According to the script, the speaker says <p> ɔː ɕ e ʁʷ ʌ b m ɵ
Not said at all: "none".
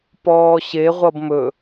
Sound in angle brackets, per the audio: p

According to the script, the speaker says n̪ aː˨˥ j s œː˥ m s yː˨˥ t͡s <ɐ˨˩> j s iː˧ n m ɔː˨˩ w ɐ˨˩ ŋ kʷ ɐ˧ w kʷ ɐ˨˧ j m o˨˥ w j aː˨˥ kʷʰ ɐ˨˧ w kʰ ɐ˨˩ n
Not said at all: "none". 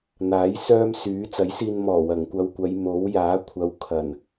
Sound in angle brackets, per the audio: ɐ˨˥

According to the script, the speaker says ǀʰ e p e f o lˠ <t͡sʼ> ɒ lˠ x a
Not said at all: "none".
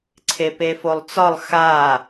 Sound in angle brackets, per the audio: t͡s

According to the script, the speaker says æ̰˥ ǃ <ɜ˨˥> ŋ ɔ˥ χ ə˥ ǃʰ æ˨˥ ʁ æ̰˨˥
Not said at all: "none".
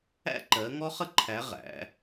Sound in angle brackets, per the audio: ɜ˨˥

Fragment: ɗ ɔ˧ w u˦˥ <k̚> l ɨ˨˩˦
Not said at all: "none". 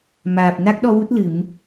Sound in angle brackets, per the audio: t̚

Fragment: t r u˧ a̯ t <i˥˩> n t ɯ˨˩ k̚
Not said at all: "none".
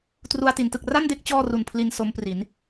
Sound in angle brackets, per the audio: i˩˦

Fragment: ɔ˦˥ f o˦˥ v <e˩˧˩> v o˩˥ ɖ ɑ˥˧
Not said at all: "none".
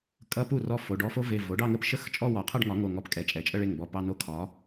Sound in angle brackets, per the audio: e˩˧˩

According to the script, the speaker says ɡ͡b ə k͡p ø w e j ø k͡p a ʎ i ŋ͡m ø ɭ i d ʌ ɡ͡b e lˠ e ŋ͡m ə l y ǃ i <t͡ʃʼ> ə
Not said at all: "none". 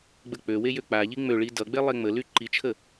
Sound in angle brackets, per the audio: t͡ʃʰ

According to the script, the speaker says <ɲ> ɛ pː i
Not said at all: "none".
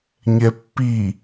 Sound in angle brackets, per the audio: ɲ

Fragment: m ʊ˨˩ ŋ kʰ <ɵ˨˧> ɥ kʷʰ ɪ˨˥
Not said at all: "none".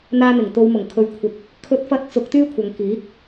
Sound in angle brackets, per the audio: ɵ˨˧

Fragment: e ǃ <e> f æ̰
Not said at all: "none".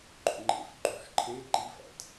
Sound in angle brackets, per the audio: i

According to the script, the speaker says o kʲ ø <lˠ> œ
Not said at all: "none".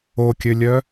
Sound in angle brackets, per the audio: lʲ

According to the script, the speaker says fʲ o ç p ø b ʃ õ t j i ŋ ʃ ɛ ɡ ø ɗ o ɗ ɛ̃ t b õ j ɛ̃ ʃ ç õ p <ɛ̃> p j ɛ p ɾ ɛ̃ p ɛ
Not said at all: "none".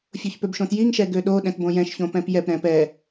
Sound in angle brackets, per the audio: ɛ̃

